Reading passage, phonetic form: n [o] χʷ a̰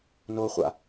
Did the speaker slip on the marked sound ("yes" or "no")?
no